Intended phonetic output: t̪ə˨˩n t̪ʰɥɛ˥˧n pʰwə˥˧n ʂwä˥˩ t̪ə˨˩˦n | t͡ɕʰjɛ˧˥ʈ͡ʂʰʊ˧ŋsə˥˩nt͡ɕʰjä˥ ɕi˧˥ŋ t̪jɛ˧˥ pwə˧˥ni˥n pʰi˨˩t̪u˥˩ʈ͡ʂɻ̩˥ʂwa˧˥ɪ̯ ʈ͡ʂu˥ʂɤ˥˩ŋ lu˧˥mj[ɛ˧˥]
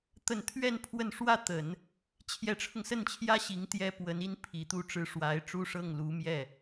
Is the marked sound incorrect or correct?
incorrect